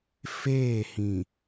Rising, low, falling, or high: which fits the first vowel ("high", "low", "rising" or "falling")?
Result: falling